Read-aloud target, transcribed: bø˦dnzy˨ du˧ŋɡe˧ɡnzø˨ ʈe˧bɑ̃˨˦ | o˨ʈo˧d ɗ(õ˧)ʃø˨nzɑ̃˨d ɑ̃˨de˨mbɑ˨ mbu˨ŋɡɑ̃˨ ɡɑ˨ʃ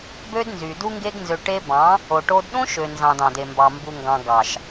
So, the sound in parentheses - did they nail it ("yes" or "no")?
no